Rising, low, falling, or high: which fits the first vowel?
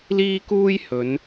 high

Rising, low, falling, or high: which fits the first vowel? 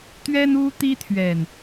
high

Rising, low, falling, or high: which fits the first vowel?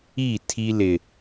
falling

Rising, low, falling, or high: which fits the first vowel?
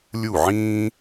falling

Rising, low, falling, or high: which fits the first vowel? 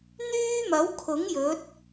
high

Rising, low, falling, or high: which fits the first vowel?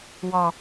low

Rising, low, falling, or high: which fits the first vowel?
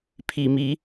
low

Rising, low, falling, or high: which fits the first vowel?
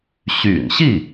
low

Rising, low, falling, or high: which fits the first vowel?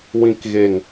low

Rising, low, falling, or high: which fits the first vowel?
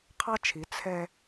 high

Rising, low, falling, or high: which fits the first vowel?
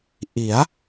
rising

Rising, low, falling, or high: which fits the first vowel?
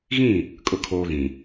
falling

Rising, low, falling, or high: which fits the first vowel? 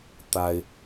low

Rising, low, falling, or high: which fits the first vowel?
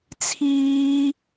high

